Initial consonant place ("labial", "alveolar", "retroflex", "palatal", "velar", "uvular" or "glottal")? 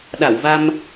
alveolar